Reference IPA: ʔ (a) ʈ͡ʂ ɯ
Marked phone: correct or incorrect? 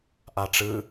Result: correct